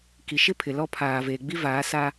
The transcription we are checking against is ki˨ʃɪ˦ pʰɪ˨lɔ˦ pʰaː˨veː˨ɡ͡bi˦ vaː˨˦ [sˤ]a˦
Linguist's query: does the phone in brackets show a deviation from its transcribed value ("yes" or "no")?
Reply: yes